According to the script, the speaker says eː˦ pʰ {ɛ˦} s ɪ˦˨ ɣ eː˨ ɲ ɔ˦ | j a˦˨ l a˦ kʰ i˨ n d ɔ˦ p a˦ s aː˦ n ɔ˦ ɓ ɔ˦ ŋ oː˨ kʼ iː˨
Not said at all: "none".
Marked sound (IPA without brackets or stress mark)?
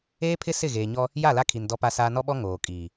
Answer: ɪ˦